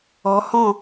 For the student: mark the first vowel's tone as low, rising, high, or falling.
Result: rising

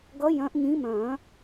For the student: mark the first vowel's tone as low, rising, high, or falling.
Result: rising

